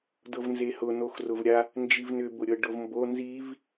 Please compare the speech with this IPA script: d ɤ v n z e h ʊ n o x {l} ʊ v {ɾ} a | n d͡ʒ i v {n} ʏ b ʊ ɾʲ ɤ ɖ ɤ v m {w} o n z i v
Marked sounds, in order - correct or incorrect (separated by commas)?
incorrect, incorrect, correct, incorrect